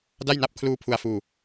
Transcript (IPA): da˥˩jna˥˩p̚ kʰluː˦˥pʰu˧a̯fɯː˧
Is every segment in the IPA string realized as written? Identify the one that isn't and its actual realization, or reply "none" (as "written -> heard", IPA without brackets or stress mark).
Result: ɯː˧ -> uː˧